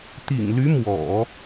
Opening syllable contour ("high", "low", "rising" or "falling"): low